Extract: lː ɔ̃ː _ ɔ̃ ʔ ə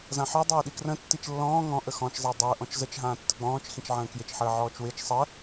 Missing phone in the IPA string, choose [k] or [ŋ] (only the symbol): ŋ